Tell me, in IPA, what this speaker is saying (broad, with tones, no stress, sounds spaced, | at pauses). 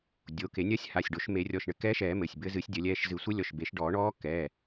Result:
dʲ o˩˧˩ k e˨˩˦ nʲ ɐ˧˥ sʲ h a˩˧˩ sʲ ɖ o˨˩˦ ʃ m e˨˩˦ rʲ ɔ˩˧˩ ʃ ɳ ɘ˨˩˦ k ɛː˧˥ ʃ ɛː˨˩˦ m ɘ˩˧˩ sʲ b ɘ˧˥ z ɨ˨˩˦ sʲ dʲ ɐ˨˩˦ lʲ ɛː˩˧˩ ʃ z ɨ˨˩˦ sʷ ɘ˧˥ lʲ ɔ˩˧˩ ʃ b e˨˩˦ ʃ ɖ ɔː˨˩˦ ɳ ɔː˧˥ k ɛ˩˧˩